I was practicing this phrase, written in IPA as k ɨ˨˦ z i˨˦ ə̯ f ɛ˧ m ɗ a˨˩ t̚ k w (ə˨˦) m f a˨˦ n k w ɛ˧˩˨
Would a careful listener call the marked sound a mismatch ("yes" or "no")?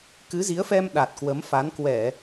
no